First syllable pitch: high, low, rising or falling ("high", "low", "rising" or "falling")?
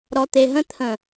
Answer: low